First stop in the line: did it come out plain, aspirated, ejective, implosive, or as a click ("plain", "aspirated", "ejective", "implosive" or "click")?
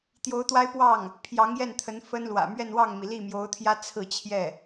plain